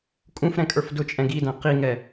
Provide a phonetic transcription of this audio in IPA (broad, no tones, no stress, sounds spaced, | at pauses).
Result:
kʼ ũ f ɾ ɛ̃ kʼ ə˞ f d ʊ t͡ʃʼ ɛ̃ ɡ i d æ̃ q i ŋ ɛ